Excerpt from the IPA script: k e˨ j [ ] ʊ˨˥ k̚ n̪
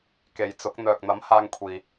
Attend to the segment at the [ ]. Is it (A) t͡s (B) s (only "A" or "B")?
A